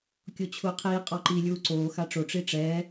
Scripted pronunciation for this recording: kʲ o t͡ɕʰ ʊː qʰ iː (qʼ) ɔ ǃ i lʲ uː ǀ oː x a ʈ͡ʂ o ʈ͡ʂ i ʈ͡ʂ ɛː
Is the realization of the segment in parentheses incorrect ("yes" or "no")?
no